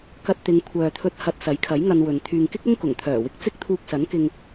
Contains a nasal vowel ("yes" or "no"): no